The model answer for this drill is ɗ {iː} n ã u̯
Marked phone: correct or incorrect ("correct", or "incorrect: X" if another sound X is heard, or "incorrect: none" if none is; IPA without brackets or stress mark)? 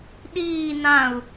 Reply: correct